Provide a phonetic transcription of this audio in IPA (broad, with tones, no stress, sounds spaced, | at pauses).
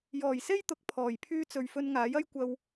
j ɔː˨˩ j s e˥ j t̪ ʊ˨˥ k̚ pʰ ɔː˨˩ j pʰ yː˥ t͡s ɵ˨ ɥ f ɵ˧ n ŋ aː˨˥ j ɐ˥ j kʷ ɐ˧ w